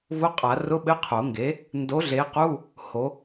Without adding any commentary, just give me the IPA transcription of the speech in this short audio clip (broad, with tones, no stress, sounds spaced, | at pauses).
v ʊ˧˥˧ qʼ a˨˩˦ r ʊ˧˥˧ ɓ ɘ˧˥˧ qʰ o˨˩˦ ŋ ɡ e˨˥ | n d o˨˥ ɮ e˨˥ q u˧˥˧ | h o˨˥